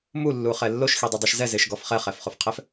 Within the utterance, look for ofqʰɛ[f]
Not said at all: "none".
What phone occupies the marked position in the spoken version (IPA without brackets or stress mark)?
f